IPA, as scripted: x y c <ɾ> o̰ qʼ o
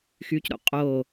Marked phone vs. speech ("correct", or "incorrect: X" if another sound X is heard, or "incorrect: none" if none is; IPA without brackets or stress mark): correct